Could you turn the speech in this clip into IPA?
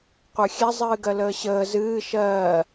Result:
qʷ ə˞ xʲ ɛ zˤ ɨː ɡ ɜ l əː ɕ əː z ɨː ʃ ɜː

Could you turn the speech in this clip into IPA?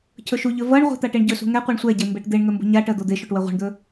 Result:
cʰ ɵ ʃ u ʎ ɵ v ʌ ɳ ʁʷ e̤ t̪ a ʈ e ɳ ɟ ɵ s ṳ ŋ ɛ qʷ e ɳ sʷ ɛ ɟ e m b e ʈ d̪ e ɳ ŋ ɵ m b ṳ ɲ a ʈ ɜ d̪ o d̪ e ʃ o ʈ w ɜ ʁʷ e̤ ɳ d̪ ɵ

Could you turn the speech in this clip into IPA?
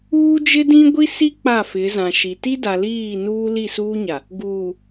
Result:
uː˦ d͡ʒ ɪ˦ d ĩ˦ ɡʷ i˦ s i˦ k͡p a˦˨ f ɪ˨˦ z ã˨ ʃ i˨ t i˦ d a˨ l iː˦˨ n uː˦ l i˦˨ s uː˦ ɲ a˨ | ɡ uː˨

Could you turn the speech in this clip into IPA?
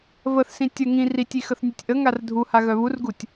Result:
v ə θ s ĩ tʲ ə ŋ ĩ r i tʲ i x ə θ nʲ u tʲ ʔ ə ŋ a r dʱ u h a ɣ œ β u r ɡ u tʲ

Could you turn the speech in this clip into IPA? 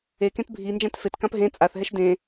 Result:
e k ẽ t bʱ i n d͡ʒ ã t f e t k ã p ɦ ẽ t͡sʼ a θ ɦ ɛ ʃ d ẽ

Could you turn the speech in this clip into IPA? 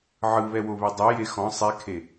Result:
ʕ ɯ β ɛ w o β e dˤ ɯ j e x ɔ̃ sˤ e kʰ e

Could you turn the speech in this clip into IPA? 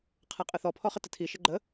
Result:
qʰ a qʼ ə θ ɔ pʰ ɔ χ ə t ə tʰ i ʃ ə ɡ͡ǃ ə

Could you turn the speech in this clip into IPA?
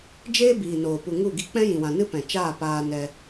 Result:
d͡ʒ eː˦ b iː˨ n oː˨ p u˨ ŋ u˦˨ ɡ i˧ k͡p ɛ̃˦ j ĩ˨ w ã˨ n ɨ˦ p ɛ̃˨ t͡ʃ aː˦˨ p aː˧ n ɛ˧

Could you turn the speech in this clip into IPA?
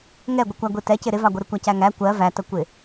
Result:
ŋ ɛ ɡʷ ə kʷ æ ɡʷ i t ɛ c ɪ ɾ ɪ v ɑ ɡʷ ɪ ɾ ɪ kʷ æ c æ ŋ æ kʷ ɜ v æ t ə kʷ ɪ

